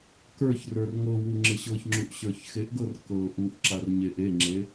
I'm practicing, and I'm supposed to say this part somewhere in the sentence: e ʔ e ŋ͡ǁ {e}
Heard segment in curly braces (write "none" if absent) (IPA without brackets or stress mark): e